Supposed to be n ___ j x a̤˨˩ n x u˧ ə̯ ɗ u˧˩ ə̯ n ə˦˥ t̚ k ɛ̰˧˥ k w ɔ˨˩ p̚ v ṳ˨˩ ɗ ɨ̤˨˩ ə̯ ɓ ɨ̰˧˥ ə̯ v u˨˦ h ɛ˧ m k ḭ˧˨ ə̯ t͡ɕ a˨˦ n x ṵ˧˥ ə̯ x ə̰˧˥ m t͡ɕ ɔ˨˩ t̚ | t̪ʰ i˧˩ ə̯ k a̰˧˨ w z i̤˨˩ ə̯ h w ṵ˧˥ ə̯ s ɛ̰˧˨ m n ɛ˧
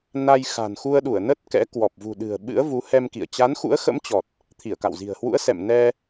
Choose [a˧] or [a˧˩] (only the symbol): a˧